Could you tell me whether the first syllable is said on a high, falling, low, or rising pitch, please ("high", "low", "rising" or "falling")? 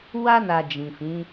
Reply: high